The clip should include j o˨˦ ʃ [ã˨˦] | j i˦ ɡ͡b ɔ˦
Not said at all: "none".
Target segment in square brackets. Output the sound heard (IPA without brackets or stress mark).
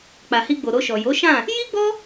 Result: ã˦˨